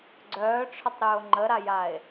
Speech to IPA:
ɡ͡ǀ œː ʈ͡ʂʰ œ tˤ ɾ ʏː o̯ ŋ͡ǃ ə ɾ a j a e̯

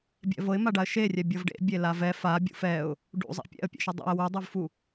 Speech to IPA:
bʲ ɛ̰ v ɤ ɪ̯ m a ɖ a ə̯ ʃ e rʲ ɛ bʲ ɤ v ɖ ḛ bʲ e l a v ɛ f a bʲ ṵ f ɛ ʊ̯ | ɖ ṵ zˤ a̰ pʲ ɛ̰ ə̯ pʲ ḛ ʃ ɯ dˤ ɛ̰ ə̯ w u dˤ u v f u

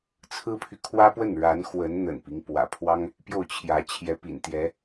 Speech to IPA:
t͡sʰ ɹ̩˥ pʰ y˨ kʰ w ä˥ p w ə˥˩ n ɻ a˧˥ n x w ə˧˥ n n̪ ə̰˨˩ n p i˦ ŋ p w ä̰˨˩ pʰ w ɑ˥ ŋ | p j o˥˩ ʊ̯ t͡ɕʰ j ä˧˥ t͡ɕʰ j ɛ˧˥ p ḭ˨˩ n t̪ j ɛ˧˥

